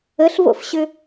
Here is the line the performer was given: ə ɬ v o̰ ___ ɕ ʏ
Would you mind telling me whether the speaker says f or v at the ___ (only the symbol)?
f